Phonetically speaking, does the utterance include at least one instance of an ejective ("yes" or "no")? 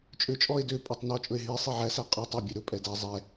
yes